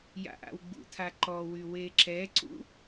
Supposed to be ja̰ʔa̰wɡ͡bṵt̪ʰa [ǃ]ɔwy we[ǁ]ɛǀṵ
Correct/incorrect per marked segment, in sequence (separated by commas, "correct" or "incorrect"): correct, correct